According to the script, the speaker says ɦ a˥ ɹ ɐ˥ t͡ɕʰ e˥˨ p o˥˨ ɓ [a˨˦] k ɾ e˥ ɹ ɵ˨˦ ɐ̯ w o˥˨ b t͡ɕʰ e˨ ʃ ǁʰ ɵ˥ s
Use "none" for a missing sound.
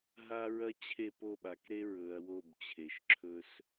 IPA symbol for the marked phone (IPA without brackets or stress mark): a˨˦